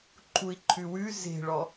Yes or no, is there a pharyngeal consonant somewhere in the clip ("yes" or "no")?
no